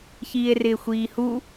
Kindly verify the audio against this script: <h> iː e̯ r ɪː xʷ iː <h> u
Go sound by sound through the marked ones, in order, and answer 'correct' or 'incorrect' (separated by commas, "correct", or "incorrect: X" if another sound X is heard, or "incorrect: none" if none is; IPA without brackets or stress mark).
incorrect: ç, correct